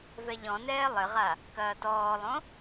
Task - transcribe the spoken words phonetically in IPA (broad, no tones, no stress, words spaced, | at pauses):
vɛʎɔ̃nɛː lˠɘʁa | kɐːtɔːlˠõ